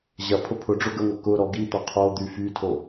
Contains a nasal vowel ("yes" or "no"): no